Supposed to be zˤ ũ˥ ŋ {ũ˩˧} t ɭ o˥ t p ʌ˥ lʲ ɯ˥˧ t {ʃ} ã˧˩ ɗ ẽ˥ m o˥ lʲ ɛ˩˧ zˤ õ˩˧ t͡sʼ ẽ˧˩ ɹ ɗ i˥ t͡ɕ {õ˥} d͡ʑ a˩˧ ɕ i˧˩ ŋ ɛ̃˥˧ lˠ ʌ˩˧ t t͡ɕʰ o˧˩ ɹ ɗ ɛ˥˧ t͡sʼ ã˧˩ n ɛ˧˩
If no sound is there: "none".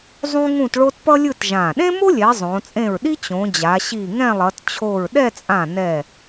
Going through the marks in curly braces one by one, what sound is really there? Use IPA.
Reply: ũ˥˧, ʒ, õ˩˧

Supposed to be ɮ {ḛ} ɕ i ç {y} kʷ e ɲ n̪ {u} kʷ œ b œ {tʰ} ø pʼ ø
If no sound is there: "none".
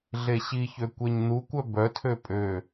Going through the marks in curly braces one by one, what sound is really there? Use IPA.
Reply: e, ø, u, tʰ

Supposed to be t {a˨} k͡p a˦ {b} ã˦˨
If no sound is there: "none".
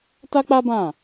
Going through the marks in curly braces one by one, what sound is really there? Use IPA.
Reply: a˦, b

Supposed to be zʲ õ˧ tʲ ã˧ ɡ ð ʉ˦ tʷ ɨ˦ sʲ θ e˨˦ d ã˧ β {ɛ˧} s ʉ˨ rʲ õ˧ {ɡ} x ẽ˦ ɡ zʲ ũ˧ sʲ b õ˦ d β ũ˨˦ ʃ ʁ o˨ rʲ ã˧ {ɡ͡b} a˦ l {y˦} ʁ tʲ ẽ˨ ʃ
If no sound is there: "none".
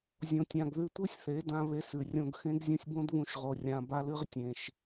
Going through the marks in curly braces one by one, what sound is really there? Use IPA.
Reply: e˧, ɡ, b, ɨ˦

